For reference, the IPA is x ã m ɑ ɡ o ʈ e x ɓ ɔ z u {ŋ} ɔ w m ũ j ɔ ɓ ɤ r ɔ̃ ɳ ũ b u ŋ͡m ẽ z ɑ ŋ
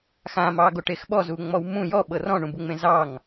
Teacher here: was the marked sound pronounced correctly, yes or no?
no